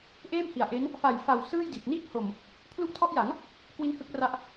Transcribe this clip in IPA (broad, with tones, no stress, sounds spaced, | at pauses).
ʔ eː˥˩ m h i˨˩ a̯ ʔ e˦˥ n | f a˨˩ j f a˨˩ w s ɯː˥˩ j d i˨˩ t̚ n iː˥˩ k̚ h o˨˩ m | pʰ l u˦˥ ʔ tʰ ɔ˦˥ ʔ j a˩˦ ŋ | k w i˦˥ n h ɯ˦˥ k̚ r a˦˥ ʔ